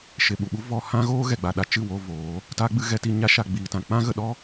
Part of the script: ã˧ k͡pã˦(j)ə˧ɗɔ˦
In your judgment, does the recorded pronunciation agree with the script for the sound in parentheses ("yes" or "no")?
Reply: no